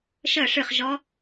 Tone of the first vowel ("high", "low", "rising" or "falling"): falling